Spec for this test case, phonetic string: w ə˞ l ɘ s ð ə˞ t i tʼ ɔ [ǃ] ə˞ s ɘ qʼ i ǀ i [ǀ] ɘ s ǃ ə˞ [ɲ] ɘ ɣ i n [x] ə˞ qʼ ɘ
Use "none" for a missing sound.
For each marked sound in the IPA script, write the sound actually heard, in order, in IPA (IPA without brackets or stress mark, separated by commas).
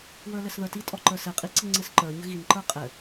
ǃ, ŋ͡ǀ, ɲ, ǃ